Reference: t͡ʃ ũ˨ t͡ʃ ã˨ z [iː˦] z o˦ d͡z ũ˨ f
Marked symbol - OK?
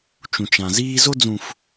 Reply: yes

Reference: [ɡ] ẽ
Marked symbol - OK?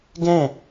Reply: yes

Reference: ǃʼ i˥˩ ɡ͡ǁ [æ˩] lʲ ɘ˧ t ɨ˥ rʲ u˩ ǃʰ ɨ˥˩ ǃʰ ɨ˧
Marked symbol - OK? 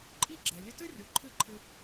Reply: no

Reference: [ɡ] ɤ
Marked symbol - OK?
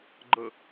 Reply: no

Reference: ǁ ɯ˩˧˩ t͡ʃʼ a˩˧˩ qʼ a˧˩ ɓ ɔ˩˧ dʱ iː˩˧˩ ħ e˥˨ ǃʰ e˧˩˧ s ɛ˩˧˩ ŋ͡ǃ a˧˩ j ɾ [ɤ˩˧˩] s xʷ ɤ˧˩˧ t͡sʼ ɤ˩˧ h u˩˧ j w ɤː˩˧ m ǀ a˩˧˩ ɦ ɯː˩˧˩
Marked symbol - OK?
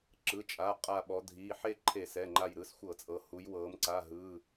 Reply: no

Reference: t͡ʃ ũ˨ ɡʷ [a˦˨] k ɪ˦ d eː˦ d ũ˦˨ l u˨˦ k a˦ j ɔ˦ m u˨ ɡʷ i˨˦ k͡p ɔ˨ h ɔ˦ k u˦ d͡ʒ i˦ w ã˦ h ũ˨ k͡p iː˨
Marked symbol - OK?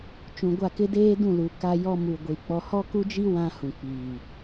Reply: yes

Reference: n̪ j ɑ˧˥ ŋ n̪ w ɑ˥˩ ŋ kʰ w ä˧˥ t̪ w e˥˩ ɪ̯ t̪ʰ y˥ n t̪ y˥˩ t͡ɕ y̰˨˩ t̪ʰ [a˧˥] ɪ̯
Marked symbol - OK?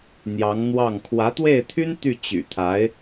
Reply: yes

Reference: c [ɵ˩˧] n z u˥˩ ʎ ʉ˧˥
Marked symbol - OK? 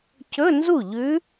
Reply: no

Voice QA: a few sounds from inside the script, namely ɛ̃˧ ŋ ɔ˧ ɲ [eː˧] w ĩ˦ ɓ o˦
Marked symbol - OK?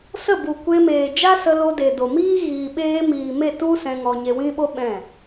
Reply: no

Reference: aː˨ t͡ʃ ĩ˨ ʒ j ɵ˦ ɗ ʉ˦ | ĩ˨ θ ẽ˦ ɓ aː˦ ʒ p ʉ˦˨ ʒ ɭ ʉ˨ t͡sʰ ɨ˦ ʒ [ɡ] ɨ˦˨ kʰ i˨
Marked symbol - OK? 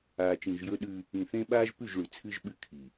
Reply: no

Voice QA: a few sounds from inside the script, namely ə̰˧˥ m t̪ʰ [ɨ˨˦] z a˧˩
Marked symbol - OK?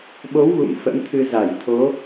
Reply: no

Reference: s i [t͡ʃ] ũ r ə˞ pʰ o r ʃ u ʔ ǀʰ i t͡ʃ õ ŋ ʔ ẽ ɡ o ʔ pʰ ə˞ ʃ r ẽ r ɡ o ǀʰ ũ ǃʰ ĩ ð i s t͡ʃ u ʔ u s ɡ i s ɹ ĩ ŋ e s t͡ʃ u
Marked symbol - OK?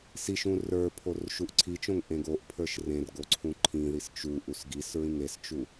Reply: no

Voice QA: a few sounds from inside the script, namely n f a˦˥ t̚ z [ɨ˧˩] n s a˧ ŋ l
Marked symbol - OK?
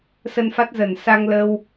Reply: no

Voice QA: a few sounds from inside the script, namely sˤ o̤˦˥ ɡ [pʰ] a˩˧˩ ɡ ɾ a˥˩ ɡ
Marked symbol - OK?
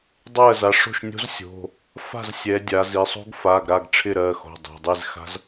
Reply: no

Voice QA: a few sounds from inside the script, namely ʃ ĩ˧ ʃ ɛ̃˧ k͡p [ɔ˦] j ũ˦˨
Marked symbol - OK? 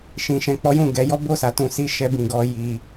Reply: yes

